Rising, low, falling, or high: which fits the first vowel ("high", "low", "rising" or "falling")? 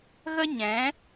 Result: high